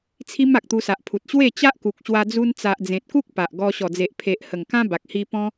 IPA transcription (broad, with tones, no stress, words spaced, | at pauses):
t͡sʰi˦m a˨k̚t̪u˧sa˨ʔpʰu˨t̚ ɕwe˥˧ t͡ɕa˦ʔku˨k̚ɕwa˧ d͡zu˧nt͡sa˨ʔ d͡zẽ˨t̚ku˦k̚ pa˨ʔɡɔ˧ ɕɔ˨˩d͡ze˨ʔpʰe˨ʔhə˨˩ŋ kã˦ba˨k̚hi˧ pɔ̃˦